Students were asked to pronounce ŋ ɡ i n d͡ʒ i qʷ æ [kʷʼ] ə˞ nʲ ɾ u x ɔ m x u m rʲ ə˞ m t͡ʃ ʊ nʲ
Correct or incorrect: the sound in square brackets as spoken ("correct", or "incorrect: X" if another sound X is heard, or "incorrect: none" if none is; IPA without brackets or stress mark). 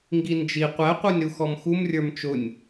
incorrect: qʷ